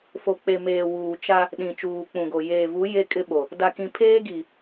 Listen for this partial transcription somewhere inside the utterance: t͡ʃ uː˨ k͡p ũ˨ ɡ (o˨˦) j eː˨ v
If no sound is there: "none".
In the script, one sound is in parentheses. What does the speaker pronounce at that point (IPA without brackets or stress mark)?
o˨